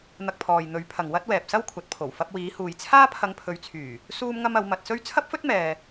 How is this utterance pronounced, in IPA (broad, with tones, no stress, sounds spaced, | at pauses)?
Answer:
n̪ ɐ˧ k̚ pʰ ɔː˨ j n̪ ɵ˨˥ ɥ pʰ ɐ˨ ŋ w ɐ˥ t̚ w ɛː˨ p̚ s ɐ˥ w kʷʰ ɐ˨ t̚ pʰ o˨˩ w f ɐ˧ p̚ w iː˨˥ h uː˨ j t͡sʰ aː˥ pʰ ɐ˧ ŋ pʰ ɵ˨˧ ɥ t͡sʰ yː˨˩ | s uː˥ m ŋ ɐ˥ m ɐ˨˥ w m ɐ˧ t̚ s ɵ˥ ɥ t͡sʰ ɐ˥ p̚ f ɵ˥ t̚ m ɛː˨